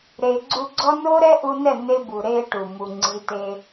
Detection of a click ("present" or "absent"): present